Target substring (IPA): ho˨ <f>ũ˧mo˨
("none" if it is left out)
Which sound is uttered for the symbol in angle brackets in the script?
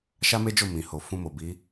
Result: f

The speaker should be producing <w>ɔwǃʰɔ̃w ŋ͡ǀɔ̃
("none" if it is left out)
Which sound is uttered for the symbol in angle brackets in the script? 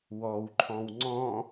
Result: w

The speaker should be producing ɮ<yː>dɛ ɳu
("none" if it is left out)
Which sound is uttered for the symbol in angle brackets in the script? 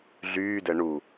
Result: yː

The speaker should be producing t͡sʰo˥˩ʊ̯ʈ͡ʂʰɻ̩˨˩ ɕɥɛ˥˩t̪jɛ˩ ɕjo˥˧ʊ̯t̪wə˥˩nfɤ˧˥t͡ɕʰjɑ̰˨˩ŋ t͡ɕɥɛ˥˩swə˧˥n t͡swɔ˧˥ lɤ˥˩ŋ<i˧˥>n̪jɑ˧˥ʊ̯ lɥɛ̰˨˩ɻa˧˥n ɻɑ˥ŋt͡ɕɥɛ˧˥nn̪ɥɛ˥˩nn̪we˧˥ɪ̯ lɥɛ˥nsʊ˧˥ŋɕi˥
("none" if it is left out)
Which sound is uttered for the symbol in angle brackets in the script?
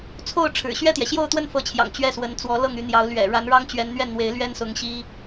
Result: y˧˥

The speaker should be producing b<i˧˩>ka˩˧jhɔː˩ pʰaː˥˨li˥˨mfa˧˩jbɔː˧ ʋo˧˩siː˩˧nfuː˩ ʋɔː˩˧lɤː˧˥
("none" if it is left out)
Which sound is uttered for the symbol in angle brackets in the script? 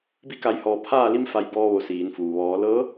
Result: i˧˩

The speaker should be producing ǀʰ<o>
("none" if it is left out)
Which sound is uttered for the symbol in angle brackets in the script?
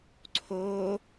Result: o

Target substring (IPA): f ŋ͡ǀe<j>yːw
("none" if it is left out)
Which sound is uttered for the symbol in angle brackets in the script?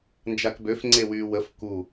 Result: w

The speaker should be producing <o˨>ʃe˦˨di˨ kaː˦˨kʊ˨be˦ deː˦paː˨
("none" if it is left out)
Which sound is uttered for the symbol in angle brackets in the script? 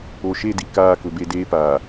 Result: o˨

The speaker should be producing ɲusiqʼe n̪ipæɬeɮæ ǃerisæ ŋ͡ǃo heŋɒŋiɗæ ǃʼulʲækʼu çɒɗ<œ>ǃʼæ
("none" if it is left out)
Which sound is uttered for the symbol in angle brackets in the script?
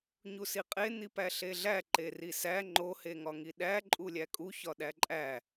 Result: æ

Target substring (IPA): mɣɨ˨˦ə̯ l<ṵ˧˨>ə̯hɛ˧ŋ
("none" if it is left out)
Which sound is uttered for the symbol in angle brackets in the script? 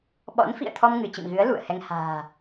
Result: ṵ˧˨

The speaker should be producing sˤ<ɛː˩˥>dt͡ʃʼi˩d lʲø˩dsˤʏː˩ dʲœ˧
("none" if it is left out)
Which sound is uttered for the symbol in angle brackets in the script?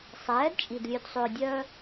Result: ɛː˩˥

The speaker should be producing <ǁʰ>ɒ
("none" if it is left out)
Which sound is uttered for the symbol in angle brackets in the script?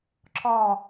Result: ǁʰ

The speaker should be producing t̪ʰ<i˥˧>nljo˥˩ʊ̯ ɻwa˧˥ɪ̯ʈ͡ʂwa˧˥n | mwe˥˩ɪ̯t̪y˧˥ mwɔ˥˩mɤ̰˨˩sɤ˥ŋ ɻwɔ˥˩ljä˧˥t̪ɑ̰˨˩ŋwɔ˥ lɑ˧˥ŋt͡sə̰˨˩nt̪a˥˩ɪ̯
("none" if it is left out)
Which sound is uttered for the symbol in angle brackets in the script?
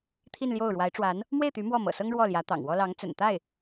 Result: i˥˧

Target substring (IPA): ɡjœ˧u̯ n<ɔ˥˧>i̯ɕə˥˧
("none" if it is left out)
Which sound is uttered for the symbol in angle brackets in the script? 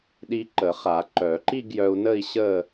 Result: ə˥˧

